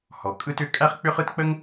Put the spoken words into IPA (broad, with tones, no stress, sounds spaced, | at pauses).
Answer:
h ɔ˩ kʼ ɯ˥ t ʏ˥ kʼ æ˥ χ k͡p ʏ˥ χ ɯ˥ t k͡p ə˥ ŋ